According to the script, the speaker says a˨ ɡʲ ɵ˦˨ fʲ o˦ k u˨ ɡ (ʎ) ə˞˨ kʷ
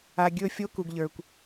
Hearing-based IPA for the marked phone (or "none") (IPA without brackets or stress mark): ʎ